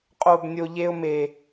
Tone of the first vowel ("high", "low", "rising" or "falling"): high